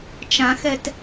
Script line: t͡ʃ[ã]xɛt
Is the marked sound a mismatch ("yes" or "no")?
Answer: no